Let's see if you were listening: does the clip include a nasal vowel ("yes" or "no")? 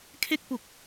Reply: no